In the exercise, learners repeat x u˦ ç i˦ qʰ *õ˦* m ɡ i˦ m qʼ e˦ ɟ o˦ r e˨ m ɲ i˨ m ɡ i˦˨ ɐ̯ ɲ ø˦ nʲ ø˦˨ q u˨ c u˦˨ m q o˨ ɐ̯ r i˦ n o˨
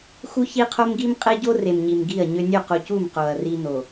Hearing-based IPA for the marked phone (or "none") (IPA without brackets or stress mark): o˦